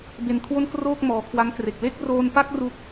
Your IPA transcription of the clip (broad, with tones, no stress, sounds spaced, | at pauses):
b e˧ n kʰ w o˥˩ n k r oː˥˩ k̚ m ɔː˩˦ kʰ w a˦˥ ŋ k r e˨˩ k̚ l e˥˩ k̚ r oː˧ n p a˥˩ k̚ r u˦˥ k̚